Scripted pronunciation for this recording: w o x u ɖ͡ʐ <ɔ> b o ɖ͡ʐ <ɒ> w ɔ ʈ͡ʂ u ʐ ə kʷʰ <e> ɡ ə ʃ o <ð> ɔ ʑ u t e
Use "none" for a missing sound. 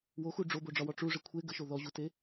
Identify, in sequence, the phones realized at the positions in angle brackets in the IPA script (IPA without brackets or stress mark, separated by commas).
o, ɒ, e, ð